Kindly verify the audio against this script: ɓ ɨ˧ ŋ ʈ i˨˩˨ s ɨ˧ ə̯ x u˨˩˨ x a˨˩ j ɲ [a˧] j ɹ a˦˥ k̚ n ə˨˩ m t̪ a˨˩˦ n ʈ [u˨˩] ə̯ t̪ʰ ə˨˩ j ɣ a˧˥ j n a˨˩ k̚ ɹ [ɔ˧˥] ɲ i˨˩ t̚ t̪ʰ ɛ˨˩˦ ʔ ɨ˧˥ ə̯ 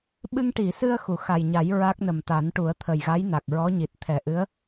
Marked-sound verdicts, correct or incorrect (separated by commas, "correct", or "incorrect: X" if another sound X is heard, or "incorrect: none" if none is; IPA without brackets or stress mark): incorrect: a˨˩˦, incorrect: u˨˩˦, correct